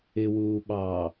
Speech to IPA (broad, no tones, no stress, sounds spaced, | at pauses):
ɪ w uː ɓ ɑː